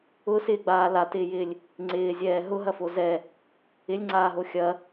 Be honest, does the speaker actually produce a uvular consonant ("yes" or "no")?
no